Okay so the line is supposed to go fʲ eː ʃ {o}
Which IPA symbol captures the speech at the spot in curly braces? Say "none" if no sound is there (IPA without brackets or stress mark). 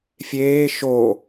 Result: o